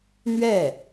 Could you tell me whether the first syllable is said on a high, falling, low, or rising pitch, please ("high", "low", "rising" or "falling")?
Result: falling